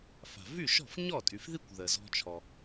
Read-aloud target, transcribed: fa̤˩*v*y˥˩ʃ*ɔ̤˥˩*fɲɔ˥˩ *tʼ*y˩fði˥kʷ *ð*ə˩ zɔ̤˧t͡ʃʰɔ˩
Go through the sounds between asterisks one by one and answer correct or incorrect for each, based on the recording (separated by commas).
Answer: correct, correct, correct, correct